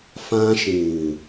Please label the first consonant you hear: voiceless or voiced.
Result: voiceless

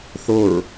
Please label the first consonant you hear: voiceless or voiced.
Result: voiceless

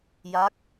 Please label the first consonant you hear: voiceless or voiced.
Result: voiced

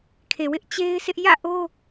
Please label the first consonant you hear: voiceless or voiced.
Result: voiceless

